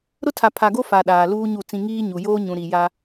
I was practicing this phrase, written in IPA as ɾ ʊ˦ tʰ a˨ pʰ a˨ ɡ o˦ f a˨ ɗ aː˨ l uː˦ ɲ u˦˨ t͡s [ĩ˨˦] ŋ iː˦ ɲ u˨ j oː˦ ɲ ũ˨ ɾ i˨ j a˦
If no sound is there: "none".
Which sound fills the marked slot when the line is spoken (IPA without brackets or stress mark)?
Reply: ĩ˦